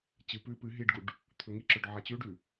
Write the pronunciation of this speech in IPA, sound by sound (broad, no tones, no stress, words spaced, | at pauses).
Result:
t͡ɕɨ pʉ pɨ ɦiɖɡuɖ | t̪ʰɵŋiǁɵɖ ʕat͡ɕʉɖʉ